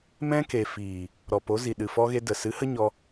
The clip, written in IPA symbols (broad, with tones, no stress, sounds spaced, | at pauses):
m ɛ̃˦ k e˨ f iː˨ | ɾ ɔ˨ p o˨˦ z i˨ ɗ ɨ˨ f ɔ˦ ɣ e˦ d ə˨ s ɨ˨˦ h ə˦ ɲ ɔ˧